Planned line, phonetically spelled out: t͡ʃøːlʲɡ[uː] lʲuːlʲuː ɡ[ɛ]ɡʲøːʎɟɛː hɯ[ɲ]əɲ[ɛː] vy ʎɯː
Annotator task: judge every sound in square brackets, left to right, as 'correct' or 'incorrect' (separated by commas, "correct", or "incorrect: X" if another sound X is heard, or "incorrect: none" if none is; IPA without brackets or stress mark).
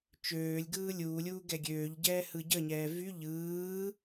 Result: incorrect: ɯː, correct, incorrect: ɟ, correct